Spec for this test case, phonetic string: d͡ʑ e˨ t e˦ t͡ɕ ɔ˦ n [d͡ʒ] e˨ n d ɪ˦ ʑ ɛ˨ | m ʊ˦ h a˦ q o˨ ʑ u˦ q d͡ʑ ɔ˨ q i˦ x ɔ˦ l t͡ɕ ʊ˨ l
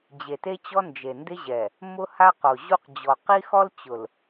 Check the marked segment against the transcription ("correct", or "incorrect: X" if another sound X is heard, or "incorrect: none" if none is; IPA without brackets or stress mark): correct